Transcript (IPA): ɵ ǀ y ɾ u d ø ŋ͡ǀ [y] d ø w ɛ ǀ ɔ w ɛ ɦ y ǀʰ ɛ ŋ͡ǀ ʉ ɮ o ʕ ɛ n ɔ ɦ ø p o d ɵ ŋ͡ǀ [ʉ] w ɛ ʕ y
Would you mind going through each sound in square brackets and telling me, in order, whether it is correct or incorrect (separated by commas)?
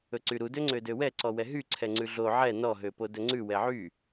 incorrect, correct